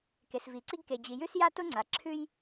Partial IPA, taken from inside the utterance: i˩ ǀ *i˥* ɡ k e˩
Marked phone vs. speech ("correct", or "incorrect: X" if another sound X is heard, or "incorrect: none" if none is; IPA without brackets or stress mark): correct